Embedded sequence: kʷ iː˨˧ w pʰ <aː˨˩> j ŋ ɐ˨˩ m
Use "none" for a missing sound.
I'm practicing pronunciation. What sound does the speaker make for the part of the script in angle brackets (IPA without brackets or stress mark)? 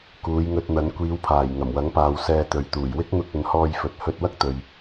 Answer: aː˨˩